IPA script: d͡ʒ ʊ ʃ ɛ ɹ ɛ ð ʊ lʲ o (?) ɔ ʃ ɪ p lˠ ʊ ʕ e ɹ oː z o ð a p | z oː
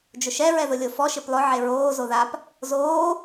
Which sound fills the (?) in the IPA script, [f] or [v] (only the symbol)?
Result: f